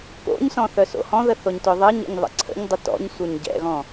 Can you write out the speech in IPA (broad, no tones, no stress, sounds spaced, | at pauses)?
k o̰ ɲ s ɔ̃ θ œ s o̰ h ɔ̃ ð ə θ o ɲ t ʊ ðˤ ɘ ɲ ə̰ ɲ ðˤ ə̰ ǀʰ ə̰ ɲ dˤ ə t ɔ̰ ɲ sʷ œ ɲ ɟ ɛ̰ ɣ ɔ̃